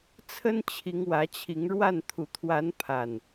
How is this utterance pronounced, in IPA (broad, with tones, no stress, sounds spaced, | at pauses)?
t͡sʰ ə˦ n t͡ɕʰ i˨˦ ŋ w ä˨˦ t͡ɕʰ i˨˦ ŋ ɻ w a˥˨ n t̪ʰ u˨˩ t̪ʰ w a˨˦ n pʰ a˨˩ n